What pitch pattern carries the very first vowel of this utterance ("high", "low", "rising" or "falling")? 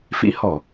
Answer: rising